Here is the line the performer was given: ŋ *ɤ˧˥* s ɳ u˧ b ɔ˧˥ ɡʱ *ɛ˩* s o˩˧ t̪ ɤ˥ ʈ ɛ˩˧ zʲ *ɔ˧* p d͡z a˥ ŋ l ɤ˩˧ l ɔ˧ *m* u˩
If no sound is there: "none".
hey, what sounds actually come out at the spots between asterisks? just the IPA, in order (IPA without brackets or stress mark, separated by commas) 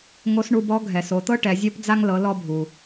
o˧˥, ɛ˩, ɔ˥, bʱ